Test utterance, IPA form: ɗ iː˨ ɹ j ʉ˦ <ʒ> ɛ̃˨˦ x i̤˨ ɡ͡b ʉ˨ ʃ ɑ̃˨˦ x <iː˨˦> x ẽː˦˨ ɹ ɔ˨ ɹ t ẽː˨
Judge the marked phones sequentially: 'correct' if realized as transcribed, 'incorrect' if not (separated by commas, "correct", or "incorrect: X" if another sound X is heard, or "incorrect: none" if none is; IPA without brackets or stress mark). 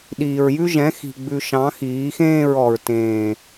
correct, correct